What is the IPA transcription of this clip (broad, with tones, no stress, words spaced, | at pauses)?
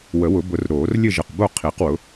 wə˨˩˦wʊ˨˩˦bʊ˨˩˦r ɾoː˨˩˦r lʲɘ˦˨ʒə˨˩qbo˦˨ qʰi˨˩˦qwʊ˩˥